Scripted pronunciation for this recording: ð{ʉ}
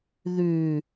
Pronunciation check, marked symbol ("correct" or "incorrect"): correct